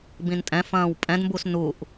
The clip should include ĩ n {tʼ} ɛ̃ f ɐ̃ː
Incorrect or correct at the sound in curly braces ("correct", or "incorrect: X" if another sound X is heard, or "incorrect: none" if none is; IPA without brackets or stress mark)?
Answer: correct